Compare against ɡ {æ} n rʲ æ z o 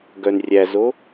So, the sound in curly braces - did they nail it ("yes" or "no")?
no